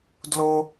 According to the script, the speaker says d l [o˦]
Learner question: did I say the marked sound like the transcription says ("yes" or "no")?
yes